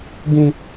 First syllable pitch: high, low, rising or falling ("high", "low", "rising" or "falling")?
high